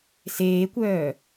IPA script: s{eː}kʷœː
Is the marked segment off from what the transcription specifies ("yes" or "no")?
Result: no